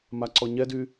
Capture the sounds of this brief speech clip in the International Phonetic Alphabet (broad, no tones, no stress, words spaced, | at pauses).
maǀɔɲɛdy